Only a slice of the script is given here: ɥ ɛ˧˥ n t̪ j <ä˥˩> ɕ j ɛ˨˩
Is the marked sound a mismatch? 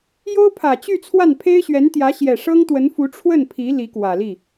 yes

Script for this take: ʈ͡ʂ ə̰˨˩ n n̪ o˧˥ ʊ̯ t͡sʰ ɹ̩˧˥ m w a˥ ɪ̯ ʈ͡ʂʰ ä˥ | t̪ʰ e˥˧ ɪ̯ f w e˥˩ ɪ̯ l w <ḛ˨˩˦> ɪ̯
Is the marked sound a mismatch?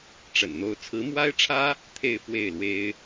yes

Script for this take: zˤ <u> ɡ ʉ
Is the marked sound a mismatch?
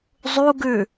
no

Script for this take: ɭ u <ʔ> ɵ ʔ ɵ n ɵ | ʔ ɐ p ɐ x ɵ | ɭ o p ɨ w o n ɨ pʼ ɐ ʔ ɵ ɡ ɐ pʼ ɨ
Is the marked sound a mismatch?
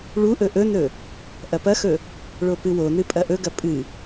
no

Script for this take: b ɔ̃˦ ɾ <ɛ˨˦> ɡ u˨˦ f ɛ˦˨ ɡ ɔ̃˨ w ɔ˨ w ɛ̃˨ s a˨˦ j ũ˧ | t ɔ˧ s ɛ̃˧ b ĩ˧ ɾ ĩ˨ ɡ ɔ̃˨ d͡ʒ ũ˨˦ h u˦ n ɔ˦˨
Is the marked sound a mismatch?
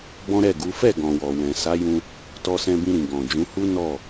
yes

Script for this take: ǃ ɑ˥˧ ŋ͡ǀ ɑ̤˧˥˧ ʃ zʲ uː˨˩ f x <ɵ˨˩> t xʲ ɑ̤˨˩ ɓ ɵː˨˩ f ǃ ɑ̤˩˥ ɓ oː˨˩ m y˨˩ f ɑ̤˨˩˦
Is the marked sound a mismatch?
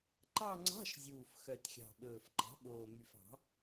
yes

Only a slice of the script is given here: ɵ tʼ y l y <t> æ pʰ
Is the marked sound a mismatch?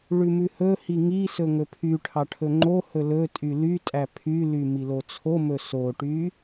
yes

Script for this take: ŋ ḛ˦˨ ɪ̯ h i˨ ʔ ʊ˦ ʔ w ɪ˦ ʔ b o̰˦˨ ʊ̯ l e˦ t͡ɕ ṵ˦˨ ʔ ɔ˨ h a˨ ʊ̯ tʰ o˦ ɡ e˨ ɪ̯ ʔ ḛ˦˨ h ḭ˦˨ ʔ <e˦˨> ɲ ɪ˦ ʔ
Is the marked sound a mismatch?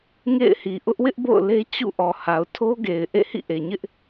yes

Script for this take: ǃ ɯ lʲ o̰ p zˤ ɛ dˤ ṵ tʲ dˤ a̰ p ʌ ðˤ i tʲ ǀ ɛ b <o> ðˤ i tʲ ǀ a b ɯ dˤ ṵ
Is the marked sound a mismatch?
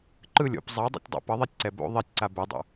yes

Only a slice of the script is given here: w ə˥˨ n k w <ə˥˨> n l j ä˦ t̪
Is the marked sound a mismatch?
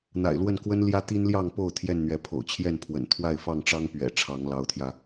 yes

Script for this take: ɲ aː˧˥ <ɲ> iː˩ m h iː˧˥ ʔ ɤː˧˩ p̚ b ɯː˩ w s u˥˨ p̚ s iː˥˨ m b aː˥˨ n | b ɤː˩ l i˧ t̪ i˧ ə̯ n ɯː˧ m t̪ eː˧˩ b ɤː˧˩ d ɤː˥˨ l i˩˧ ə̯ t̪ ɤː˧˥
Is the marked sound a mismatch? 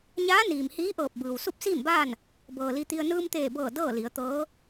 yes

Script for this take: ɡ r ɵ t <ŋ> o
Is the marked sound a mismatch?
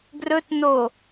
yes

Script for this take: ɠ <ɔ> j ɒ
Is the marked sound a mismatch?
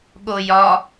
yes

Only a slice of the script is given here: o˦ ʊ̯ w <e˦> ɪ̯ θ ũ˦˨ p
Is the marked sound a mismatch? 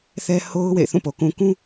yes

